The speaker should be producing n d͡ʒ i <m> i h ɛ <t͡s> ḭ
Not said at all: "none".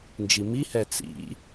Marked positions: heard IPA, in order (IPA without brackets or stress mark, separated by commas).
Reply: m, t͡s